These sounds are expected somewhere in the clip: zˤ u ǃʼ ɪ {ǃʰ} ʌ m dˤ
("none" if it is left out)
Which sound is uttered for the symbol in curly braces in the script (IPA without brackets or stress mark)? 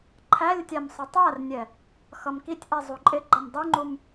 ɡ͡ǃ